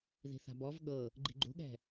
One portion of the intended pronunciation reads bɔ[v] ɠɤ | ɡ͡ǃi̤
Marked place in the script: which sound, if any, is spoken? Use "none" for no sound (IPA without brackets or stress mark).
v